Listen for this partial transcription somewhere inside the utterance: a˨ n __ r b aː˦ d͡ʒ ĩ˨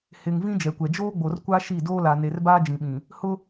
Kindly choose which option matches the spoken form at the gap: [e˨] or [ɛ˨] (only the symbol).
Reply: e˨